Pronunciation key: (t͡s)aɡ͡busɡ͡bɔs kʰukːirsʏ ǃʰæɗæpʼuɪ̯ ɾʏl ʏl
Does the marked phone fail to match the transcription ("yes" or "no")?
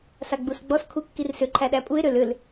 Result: yes